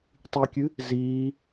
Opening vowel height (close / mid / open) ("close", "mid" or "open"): close